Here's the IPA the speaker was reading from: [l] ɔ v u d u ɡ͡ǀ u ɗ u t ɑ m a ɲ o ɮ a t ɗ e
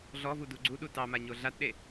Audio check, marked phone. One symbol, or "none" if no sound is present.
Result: ɮ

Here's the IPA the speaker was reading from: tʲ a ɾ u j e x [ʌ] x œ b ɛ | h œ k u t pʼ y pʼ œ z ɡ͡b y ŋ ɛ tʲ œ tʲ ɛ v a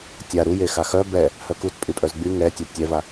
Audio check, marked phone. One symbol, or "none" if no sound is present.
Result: a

